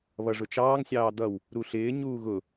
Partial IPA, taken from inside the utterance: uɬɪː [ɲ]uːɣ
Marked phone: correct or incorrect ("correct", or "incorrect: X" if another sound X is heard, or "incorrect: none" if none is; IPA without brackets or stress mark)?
correct